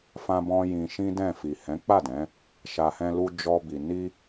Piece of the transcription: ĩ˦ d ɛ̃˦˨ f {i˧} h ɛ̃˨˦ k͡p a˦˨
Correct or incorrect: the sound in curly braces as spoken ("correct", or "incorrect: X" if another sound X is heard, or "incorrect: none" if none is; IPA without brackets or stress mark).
incorrect: i˨